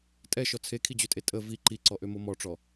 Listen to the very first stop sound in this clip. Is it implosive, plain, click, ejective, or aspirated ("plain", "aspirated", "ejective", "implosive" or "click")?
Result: ejective